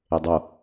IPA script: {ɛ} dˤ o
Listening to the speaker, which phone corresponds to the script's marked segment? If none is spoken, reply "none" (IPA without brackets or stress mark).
e